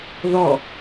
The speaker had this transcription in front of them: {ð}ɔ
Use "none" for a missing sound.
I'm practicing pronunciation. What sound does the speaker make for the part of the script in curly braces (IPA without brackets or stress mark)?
ð